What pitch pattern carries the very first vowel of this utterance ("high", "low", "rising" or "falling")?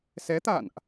rising